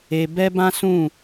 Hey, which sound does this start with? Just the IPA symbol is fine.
e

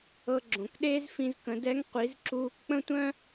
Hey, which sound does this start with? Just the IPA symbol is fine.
ɤ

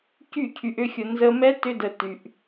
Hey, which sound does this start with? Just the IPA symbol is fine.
c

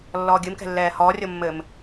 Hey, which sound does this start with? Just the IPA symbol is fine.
lː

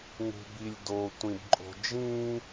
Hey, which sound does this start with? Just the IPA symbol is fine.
ŋ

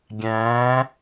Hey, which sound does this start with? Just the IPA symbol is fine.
ɡʲ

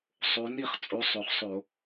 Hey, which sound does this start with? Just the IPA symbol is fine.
sˤ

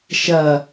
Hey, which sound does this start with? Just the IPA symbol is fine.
ʃ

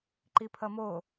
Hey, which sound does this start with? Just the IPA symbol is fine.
ǃ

